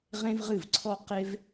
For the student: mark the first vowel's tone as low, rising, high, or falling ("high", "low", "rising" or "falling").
high